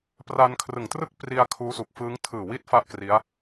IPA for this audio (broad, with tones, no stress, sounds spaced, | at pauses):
p r a˧ n kʰ r ɯ˨˩ ŋ t r ɯ˥˩ k̚ p r i˧ a̯ kʰ uː˦˥ s u˨˩ k̚ f ɯː˦˥ ŋ tʰ ɯː˨˩ w i˦˥ t̚ f a˥˩ ʔ k r i˦˥ a̯